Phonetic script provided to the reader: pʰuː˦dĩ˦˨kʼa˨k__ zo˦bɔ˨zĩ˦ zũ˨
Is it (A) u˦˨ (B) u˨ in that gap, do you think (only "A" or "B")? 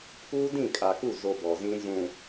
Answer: A